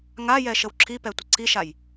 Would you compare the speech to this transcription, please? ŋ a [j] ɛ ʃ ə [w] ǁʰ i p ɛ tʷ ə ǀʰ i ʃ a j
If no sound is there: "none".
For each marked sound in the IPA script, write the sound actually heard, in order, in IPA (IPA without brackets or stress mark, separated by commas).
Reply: j, w